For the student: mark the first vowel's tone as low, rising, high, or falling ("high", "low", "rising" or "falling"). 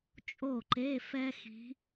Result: falling